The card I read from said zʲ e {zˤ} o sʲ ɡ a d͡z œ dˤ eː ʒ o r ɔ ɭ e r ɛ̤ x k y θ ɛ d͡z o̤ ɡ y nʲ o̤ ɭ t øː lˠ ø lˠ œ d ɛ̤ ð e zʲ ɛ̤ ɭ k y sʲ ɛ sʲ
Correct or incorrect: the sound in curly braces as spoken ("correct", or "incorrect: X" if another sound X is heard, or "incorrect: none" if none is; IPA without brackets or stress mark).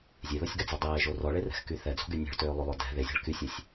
incorrect: ð